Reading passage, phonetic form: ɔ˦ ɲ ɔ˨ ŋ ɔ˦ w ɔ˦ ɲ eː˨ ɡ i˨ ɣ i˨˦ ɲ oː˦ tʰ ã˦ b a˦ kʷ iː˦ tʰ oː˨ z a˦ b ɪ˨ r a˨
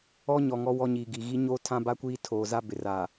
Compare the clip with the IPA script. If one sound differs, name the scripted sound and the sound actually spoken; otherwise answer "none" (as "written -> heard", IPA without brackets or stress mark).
eː˨ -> iː˨